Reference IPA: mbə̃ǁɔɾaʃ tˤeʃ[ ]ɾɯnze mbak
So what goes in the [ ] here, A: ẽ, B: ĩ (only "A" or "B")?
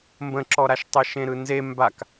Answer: A